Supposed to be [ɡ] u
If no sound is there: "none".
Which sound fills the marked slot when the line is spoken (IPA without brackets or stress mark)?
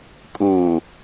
kʼ